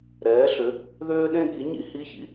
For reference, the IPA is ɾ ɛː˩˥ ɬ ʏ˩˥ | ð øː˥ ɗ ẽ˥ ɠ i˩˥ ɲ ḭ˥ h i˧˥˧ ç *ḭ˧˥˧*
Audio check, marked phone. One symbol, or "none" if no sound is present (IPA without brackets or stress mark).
ḭ˥